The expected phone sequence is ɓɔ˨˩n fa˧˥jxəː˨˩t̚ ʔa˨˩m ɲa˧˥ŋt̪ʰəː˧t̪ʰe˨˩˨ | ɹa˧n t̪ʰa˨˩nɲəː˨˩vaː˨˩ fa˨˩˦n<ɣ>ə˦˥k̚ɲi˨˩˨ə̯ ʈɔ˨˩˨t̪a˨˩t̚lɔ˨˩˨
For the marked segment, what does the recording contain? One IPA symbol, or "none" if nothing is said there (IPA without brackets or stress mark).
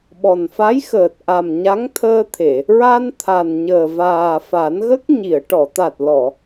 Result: ɣ